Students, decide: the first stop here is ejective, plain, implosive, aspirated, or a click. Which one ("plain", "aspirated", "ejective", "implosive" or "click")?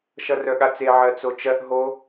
implosive